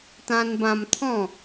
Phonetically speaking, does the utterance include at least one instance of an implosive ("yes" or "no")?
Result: no